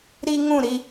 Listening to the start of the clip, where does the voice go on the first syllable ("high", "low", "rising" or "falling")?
high